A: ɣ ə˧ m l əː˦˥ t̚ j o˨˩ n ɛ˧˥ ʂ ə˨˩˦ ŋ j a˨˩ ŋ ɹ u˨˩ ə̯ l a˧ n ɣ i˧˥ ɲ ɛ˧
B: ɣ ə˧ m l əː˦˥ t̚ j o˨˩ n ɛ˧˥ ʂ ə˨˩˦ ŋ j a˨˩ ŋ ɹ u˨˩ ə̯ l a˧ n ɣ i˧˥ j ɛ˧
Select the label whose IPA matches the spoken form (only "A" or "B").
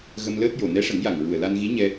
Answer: A